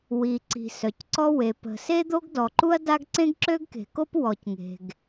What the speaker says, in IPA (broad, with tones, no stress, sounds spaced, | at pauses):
w i˩ ǀ i̤˩ s œ˩ c ǀ ɔ˥ w e˩ p ə̤˩ s e˥ d̪ o˥ ɡ d ɔ˩ ǃ u˥ ɐ̯ d a˥ ɡ ǀ ẽ˥ ɡ ǁ ø˥ ɡ k e̤˩ k o˥ p w ɔ˩ c ŋ e̤˩ ɡ